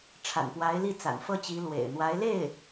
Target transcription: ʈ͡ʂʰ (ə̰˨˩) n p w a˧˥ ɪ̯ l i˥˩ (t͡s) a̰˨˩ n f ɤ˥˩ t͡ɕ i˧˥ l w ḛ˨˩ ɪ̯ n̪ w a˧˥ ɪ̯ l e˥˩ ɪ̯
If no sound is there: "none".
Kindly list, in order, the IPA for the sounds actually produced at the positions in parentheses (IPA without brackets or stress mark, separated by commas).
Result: a̰˨˩, t͡s